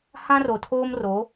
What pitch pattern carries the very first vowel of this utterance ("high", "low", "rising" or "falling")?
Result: high